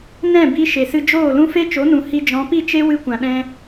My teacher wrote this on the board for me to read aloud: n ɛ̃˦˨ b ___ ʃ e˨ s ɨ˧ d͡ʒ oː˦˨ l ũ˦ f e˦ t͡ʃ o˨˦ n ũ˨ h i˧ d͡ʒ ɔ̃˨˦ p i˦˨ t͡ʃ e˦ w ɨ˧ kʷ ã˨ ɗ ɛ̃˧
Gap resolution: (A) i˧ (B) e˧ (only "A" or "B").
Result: A